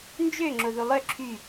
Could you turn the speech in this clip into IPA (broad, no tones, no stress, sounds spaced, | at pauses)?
n d͡ʒ ø ŋ͡ǁ o ð u lˠ œ ǁʰ y